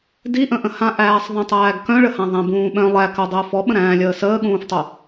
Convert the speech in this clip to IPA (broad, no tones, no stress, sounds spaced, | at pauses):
d i ʔ ə̃ ʔ ə̃ h ã ʔ æː sˤ ðˤ ə̃ tˤ æː ɡ k œ̃ ɭ ə h ã ðˤ æ̃ b ũː ɓ œ̃ lˠ æ k œ dˤ əː f ɔ ɓ ə̃ ɾ æ̃ː lʲ əː s əː ɠ ũː f tˤ o